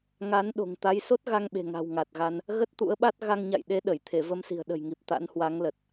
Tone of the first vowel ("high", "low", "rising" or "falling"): rising